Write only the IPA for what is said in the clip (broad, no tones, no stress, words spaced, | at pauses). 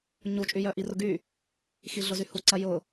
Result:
ɲut͡ʃʼyjœ ʔirʊɡy | xiɮʊzyhu ǀɐjʊ